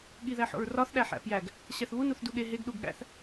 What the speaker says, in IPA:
ɠ i ð æ ħ o̰ ɹ r ɒ θ ɗ æ ħ æ̰ p j æ ɡ | ɕ æ θ β u n u θ d u ɠ e ɦ e ɡ ɗ u ɡ ɠ æ̰ θ

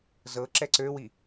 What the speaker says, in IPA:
z ɤ ǁ ɛ ǀ ø w i

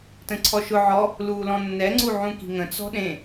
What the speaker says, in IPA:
t ə̃ ǀʰ ɔ ʃ ʊ ʕ ɔ | l uː l ɔ̃ nː ɛ ŋ͡ǀ u ʕ ũ k i̤ ŋ ə̃ t͡s ɔ̤ ɗ ẽ

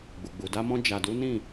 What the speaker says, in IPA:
ɡ͡b u˨ ɡ͡b u˨ d a˧ m ɔ̃˧ d͡ʒ a˨ d u˨˦ n ĩ˦˨

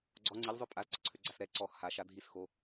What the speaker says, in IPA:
ɡ͡ǀ ɔ ŋ͡ǀ i ʎ zˤ ø pʼ a z ǀ ə ǀʰ ø ɡ͡ǀ a s ɾ ɛ ǀ ɔ x h a ʃ a dʱ i s x o

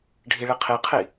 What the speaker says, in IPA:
ɖʱ i ɭ i qʰ i qʰ i

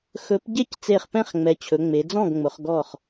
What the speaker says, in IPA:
x ɵ˨˥ p ɟ e˥˩ c t͡s e˧˩ χ p ɛ̃˥˩ χ ŋ͡m ɛ˩˧ t͡ɕʰ ɵ˩˧ ŋ͡m e˩˧ d͡z ɔ̃˥˩ ɡ ŋ͡m ʊ˩˧ χ ɡ ɔ˧˩ χ

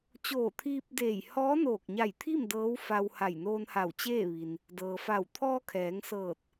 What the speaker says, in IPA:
t͡ɕ oː˧˩ t̪ʰ iː˧ p̚ d eː˧˩ j h ɔː˧˥ n oː˧˩ k̚ ɲ a˧˩ j t̪ʰ i˥˨ m d ɤː˧˥ w f a˧ w h a˧˩ j n oː˧ n h a˧˩ w t͡ɕ eː˥˨ ʋ i˩ n | d ɤː˩ f a˧˩ w t̪ʰ ɔː˧ kʰ ɛː˩˧ ŋ s ɤː˧˩ t̚

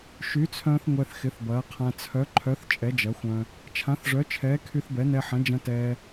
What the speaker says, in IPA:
ʃ y˨˥ t͡sʰ œ̃ː˧ θ ŋʷ ɛ˧ θ x ɪ˨˥ θ b ɐː˨˥ qʰ ã˧ t͡sʰ œ˨˥ ǃʰ œ˨˥ θ t͡ʃʼ ɛ˨˥ d͡ʒ ɐ˨˥ xʷ œ̃˧ | t͡ʃʰ ã˨˥ θ ʐ œ˨˥ t͡ʃʰ ɛː˨˥ kʰ y˧ θ b ɛ˨˥ n ɛ˧ ħ ɐ̃˨˥ d͡ʒ ɐ̃˧ t ɛː˧

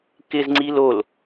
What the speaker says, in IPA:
k ɪ z ŋ͡ǀ i l o l

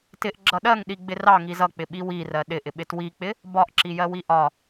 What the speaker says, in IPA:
t ɪ ʔ ɡ͡ǁ ʌ ɗ ɜ ŋ ɗ i ɡ͡b ɪ r ɑ ŋ i z ʌ k͡p ɪ ɓ i w i r ɜ ɗ ɪ ʔ ɪ ɓ ɪ t w i k͡p ɪ | b ɒ ʔ ǁ i j ɜ w i ʔ ɒ

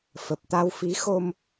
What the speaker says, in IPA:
f ə˨˩ p̚ t̪ a˧ w f i˨˦ x o˧ m

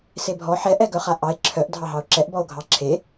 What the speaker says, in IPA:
s e bʱ ɔ ħ ɛ ʔ ɛ ɡ œ χ a ʔ ɑ e̯ ǁʰ œ ʔ dʱ ɑ ɦ ɑ o̯ ǁ ɛ ʔ b ɔ o̯ ɡʱ ɑ ǁʰ e

